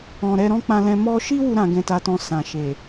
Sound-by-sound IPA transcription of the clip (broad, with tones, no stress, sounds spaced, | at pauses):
ɔ̃˨ ɾ ɛ˧ ɾ ɔ̃˦ k͡p ã˧ l ɛ̃˧ m ɔ˦ ʃ i˦ w u˧ ɾ ã˧ ɡ ɛ̃˧ t a˧ t ɔ̃˧ s ã˨ ʃ e˨